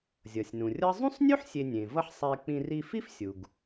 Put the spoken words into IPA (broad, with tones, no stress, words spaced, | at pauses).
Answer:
zʲʌ˩sʲnũ˩rʲʌ˥ zˤũ˥sˤnʲu˥ħ sʲe˧nʲẽ˩vʌ˥ħ sˤɛ˧k͡pĩ˧r i˧fi˥fsʲu˩ɡ